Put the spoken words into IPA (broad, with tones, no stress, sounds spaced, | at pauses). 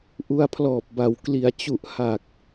ʔ u˧ a̯ pʰ l ɔː˨˩ p̚ b a˩˦ w k l i˩˦ a̯ t͡ɕ u˨˩ ʔ h a˨˩ k̚